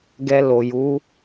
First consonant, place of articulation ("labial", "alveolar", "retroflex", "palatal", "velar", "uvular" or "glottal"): velar